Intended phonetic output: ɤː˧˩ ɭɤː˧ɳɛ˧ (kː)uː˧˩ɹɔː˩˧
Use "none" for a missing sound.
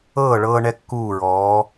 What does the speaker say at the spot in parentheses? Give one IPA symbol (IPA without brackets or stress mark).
kː